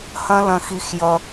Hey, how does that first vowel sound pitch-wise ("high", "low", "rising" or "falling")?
high